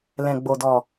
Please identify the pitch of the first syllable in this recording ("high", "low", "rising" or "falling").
low